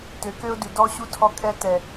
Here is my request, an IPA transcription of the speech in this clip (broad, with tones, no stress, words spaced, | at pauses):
tø˨kø˦ʊ̯ dʉ˨dɔ˦ɕu˦ tʰɔ˦kʼɛ˦tɛ˨